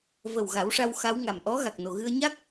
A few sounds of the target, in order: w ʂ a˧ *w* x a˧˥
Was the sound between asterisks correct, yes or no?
yes